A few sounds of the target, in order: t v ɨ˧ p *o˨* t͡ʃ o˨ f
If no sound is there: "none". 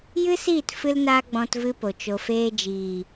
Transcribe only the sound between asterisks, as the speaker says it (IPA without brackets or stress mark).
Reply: o˨